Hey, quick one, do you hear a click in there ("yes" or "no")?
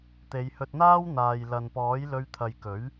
no